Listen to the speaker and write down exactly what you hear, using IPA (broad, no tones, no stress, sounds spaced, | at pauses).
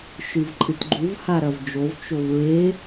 ʃ ɨ v ǃʼ ɨ t ɡ͡ǃ u v h a ɾ ɐ v d͡ʒ o v t͡ʃ o v ɹ e